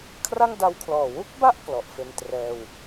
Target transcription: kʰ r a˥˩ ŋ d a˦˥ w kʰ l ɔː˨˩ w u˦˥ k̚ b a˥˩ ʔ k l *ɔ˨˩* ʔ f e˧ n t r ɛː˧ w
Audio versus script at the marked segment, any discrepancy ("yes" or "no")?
no